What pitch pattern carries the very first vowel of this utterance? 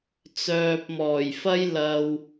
low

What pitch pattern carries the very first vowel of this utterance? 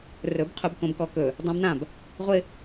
rising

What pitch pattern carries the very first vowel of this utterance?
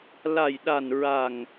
low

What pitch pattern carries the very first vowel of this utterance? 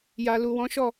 low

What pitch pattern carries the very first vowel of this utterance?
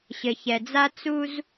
low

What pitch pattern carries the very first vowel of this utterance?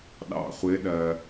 low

